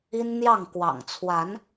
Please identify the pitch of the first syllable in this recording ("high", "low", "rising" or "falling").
high